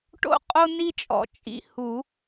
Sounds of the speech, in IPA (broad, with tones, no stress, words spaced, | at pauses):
ʈo̰˥ qʼo˥ni˥t͡ʃʼɔ̰˨˩˦t͡ʃʼḭ˧ hu˨˩˦